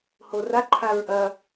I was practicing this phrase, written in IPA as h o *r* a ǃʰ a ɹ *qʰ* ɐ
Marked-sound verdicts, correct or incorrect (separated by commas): correct, incorrect